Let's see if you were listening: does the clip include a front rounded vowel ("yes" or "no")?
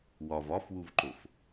no